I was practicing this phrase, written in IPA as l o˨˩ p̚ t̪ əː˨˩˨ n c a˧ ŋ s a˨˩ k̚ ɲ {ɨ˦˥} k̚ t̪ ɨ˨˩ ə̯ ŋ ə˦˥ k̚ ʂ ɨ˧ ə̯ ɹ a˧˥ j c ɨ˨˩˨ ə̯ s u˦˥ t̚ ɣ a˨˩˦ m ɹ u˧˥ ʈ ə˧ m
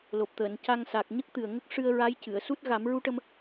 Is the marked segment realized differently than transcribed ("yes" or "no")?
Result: yes